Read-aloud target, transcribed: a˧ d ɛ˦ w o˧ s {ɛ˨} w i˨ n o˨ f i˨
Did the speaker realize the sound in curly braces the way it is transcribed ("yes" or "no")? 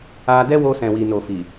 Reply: no